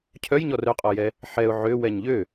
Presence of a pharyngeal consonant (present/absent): present